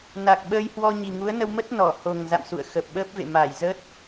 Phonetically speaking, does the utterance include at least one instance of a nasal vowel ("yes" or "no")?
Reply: no